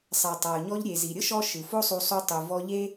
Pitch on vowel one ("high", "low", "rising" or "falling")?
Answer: low